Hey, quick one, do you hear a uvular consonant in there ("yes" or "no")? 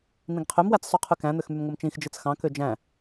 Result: yes